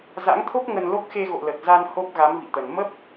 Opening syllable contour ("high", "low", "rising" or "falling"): rising